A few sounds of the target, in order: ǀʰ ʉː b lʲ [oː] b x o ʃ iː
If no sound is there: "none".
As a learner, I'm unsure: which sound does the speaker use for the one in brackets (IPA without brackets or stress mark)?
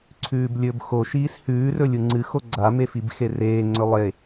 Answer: ɵː